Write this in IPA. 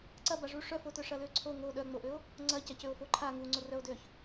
ǀɐbaʐu ʂœfotœ ʂɐløǀʰo ŋo ɗœŋ͡moʔøo̯ | ŋ͡ǀɐcɐcøo̯ foǃʰa ŋuŋ͡ǀorœo̯ døç

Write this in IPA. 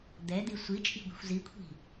d̪ɛd̪i sʷit͡ʃʼi̤ ɡʷi̤xʷzikʷʰi̤

